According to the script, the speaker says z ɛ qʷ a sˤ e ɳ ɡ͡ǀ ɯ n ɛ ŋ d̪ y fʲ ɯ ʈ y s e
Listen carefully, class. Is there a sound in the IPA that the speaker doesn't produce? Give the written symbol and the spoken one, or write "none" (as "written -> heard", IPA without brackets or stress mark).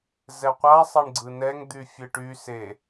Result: none